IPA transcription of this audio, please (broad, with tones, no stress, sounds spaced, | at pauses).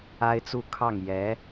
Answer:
a˥ ɪ̯ t͡s u˥˧ kʰ ɑ˥˩ ŋ j ɛ˧˥